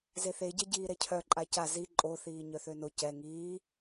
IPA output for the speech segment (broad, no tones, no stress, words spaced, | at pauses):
zeθeɟɛ ɟiːɾɛcʰœ ǃʼaca zi ǃʼoθiː ɲœθøno cɛ ŋiː